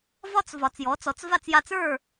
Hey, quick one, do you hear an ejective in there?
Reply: no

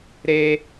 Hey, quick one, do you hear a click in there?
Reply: no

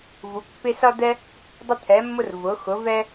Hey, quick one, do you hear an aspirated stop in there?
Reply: yes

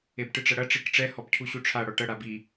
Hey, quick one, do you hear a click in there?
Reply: no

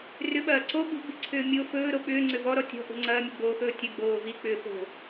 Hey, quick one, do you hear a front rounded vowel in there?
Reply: yes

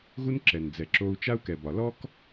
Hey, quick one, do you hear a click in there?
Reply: yes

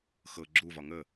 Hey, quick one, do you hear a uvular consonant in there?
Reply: no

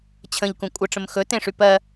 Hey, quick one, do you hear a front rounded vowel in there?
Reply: yes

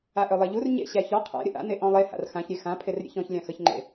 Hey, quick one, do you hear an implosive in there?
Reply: no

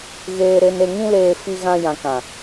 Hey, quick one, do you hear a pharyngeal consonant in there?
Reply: no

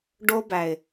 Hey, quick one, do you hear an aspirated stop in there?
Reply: no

